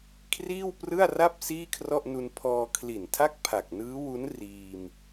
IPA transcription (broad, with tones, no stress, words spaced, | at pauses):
kʰriː˥˩wprɯ˥˩a̯ra˥˩p̚ siː˥˩kʰrɔ˥˩ʔnu˧n pʰɔː˧ kʰli˨˩ntʰa˥˩k̚ pʰa˨˩k̚nɯː˦˥wu˦˥n riː˧m